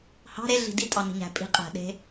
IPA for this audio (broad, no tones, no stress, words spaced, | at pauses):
hɑ̤ ɾe ɮi̤ditʼɑ ni̤ɲæ̤pʼi̤qʼæ̤ ɗe̤